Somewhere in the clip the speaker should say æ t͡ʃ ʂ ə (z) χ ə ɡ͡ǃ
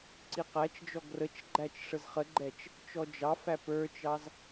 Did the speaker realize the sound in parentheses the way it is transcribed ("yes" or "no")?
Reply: yes